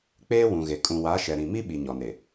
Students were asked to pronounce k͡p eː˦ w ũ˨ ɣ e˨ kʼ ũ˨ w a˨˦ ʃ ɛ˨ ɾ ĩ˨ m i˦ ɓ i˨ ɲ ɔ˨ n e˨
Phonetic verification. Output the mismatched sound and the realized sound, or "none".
none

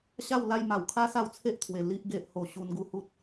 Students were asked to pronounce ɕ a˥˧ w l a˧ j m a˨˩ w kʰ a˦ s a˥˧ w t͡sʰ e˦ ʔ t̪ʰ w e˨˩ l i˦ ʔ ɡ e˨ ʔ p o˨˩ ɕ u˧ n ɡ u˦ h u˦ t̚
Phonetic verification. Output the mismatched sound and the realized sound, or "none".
p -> h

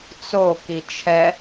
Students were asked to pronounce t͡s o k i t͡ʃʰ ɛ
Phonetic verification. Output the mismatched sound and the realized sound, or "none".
none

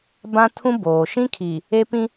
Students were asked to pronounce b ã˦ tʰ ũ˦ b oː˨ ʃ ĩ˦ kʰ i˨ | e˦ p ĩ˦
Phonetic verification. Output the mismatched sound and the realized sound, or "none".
none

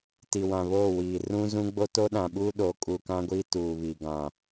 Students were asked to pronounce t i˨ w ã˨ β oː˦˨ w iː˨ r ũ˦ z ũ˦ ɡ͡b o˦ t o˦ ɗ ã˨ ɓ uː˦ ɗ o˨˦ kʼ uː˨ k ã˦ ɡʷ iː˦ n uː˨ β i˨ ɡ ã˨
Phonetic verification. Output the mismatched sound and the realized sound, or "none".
n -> t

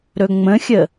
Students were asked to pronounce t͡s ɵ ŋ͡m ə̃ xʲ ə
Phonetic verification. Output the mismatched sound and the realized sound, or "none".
t͡s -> ɾ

